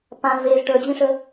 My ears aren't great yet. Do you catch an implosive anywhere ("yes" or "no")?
no